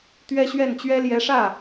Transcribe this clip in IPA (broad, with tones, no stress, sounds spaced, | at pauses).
t̪ ɥ ɛ˥ ɕ ɥ ɛ˥˩ n t͡ɕ ɥ ɛ˥ l j ɛ˧˥ ʂ ä˥˩